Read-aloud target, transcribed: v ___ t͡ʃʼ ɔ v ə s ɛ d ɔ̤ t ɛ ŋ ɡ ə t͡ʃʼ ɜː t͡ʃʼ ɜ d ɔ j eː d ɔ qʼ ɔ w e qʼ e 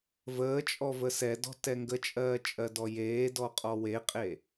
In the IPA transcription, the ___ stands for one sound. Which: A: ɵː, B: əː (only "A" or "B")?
B